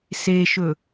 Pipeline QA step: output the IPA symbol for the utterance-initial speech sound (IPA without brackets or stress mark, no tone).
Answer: s